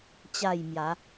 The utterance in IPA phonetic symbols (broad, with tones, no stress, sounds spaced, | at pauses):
t͡ɕ a˥˧ j m j a˨˦